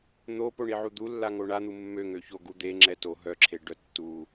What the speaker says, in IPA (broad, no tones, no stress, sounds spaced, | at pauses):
n̪ o p o ɳ i ʕ u d̪ u lː a ŋ o ɳ a n̪ u mː ø ŋ ø ç o ɡ u d̪ e ŋ͡ǁ ɛ t o ɦ œ ǁʰ e ɖ œ tː u